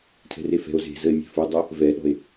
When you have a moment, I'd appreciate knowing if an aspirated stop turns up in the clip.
yes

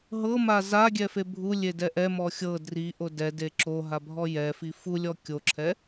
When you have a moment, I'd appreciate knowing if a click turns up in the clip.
yes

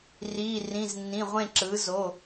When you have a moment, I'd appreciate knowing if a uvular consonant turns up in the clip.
yes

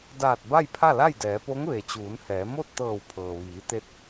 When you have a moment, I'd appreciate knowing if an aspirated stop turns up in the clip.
yes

